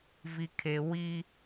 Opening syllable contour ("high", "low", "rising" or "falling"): low